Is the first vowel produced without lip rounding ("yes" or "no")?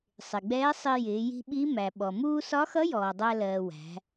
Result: yes